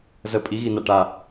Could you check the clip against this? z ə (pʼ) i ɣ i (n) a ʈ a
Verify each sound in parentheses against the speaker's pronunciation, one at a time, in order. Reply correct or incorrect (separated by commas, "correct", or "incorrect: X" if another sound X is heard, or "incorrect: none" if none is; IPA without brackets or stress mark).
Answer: correct, correct